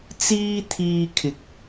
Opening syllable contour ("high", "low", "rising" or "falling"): high